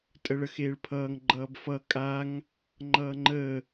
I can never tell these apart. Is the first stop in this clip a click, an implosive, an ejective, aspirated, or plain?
ejective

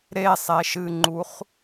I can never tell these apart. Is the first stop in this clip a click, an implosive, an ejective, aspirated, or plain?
click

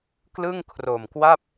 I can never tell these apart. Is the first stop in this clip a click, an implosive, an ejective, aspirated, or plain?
plain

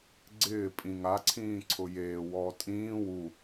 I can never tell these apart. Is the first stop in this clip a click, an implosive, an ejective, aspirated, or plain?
click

